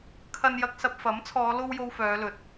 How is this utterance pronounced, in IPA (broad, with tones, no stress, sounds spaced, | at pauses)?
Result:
kʰ ɐ˧ n j ɐ˧ k̚ s ɐ˧ p̚ f ɐ˨˥ m t͡sʰ ɔː˨˧ l o˧ w j o˧ w f œː˨˧ l ɵ˨ t̚